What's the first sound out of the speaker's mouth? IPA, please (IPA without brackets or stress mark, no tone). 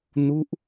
n